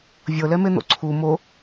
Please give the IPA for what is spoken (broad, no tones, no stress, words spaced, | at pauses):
vʲɤlɛmen̪o̰ ǀʰu mo